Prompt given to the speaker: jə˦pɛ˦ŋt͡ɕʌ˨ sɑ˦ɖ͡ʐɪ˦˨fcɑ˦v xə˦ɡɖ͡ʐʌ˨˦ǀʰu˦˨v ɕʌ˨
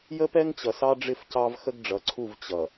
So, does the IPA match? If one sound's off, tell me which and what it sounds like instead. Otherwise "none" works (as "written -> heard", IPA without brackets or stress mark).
ɕ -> t͡ɕ